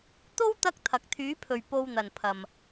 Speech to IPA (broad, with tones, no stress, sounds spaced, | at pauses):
t̪ o˥ w t̪ ɐ˥ k̚ t̪ʰ ɐ˨ k̚ t̪ʰ yː˨˥ pʰ ɵ˨ ɥ p o˧ w n̪ ɐ˨ n pʰ ɐ˨ m